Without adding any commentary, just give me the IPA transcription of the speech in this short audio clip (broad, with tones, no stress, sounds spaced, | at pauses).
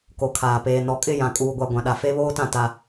k o˨ kʰ aː˨ p eː˨ n ɔ˨ kʼ ɪ˦˨ j ã˨ kʼ uː˨ ɡʷ a˨ ɡʷ ã˨ ɗ a˨ f e˦ β oː˦ t ã˦˨ t a˦